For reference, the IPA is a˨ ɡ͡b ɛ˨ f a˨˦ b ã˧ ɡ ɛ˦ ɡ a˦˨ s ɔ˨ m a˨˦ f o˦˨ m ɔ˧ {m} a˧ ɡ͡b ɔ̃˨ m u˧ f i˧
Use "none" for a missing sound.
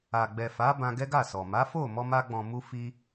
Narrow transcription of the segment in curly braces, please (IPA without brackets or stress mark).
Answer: m